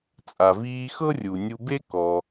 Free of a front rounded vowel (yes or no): yes